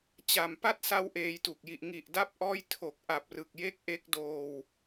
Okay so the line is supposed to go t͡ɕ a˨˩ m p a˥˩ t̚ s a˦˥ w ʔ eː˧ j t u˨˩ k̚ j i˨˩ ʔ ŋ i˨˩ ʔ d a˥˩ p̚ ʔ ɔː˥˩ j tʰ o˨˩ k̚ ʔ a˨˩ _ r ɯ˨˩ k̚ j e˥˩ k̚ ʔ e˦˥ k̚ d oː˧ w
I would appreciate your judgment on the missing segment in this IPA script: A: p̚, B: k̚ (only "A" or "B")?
A